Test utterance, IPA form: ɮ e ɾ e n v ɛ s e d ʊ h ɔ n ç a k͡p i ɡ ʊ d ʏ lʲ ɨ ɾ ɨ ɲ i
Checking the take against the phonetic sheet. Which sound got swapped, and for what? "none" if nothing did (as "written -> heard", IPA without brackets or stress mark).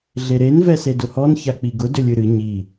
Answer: none